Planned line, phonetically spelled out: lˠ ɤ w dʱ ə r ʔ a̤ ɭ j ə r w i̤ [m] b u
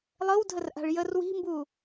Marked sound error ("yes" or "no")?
no